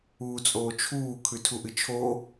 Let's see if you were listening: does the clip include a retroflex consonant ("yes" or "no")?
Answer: no